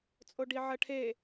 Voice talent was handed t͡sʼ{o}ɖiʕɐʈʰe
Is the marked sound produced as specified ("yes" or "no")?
yes